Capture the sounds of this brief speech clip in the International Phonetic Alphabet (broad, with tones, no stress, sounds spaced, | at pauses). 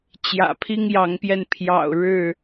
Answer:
t͡ɕ j ä̰˨˩ pʰ i˦ ŋ j ɑ˨˦ ŋ p j ɛ˧ n pʰ j ɑ̰˨˩ ʊ̯ ɻ ɻ̩˥˨